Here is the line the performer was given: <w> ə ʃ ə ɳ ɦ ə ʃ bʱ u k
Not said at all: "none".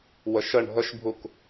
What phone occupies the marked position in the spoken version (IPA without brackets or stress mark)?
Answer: w